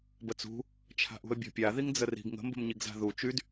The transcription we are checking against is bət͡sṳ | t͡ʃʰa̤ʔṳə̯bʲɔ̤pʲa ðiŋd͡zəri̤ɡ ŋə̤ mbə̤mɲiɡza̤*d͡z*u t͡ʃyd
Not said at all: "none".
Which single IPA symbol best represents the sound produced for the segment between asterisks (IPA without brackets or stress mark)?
ð